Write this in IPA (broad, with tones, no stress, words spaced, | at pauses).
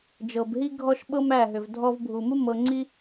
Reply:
d͡ʒɤ˨bɦi˦ɡʱɔ˦ʃɓɤ˦m æ˦˨ɦʏ˨v dʱɔ˧vbʱu˨mu˦ mɤ˧ŋ͡ǀi˦